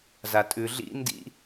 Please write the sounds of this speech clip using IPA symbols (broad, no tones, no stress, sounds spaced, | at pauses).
z a tʼ ʉ ɮ ḭ n d ḭ